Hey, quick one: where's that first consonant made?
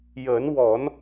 palate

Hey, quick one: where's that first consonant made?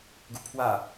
velum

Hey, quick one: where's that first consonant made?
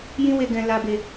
palate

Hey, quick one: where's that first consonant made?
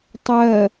tongue tip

